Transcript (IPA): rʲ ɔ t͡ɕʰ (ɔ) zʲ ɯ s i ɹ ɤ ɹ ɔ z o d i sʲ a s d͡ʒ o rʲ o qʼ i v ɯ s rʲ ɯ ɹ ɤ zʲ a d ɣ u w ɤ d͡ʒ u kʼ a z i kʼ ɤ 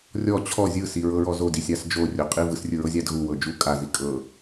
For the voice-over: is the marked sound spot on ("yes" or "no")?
yes